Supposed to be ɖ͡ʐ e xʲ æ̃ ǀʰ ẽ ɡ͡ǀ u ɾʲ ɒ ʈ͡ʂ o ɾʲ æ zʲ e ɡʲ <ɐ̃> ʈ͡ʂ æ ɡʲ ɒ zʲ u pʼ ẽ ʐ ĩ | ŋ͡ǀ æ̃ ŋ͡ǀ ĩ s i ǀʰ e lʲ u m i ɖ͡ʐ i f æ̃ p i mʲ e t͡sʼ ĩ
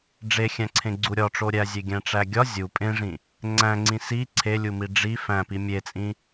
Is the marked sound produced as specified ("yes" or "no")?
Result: no